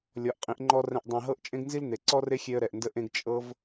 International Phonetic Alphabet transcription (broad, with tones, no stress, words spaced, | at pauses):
lʲɔ˨˦ʔqʼĩ˨˦ʔŋ͡ǃɔ˦rɛ̃˧ʔ dˤĩ˨ɦɤ˦ʔ t͡ʃʼẽ˦ɡnzi˦ln̪e˨ ǀɔ˦re˦xʲe˧ə̯ ɾɛ˨ʔndə˦ʔẽ˦ɡ t͡ʃʼɤ˦v